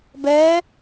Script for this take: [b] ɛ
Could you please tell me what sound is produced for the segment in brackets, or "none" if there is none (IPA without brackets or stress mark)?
b